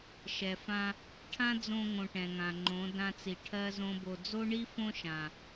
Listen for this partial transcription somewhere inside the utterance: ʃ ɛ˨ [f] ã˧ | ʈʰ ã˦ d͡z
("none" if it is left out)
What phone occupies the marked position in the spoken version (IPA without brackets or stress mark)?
f